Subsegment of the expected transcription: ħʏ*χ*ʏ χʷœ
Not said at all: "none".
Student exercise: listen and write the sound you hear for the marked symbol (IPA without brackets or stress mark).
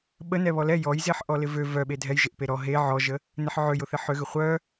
ɣ